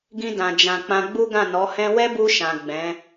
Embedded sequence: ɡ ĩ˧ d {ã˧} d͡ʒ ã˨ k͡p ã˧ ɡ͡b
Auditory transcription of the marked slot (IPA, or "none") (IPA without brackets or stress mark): ã˨